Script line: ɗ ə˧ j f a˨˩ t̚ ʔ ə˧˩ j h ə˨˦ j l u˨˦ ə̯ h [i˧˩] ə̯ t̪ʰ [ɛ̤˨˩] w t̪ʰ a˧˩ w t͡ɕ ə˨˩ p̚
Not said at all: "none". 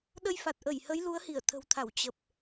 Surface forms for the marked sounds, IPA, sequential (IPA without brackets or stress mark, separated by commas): i˧˩, ə̤˨˩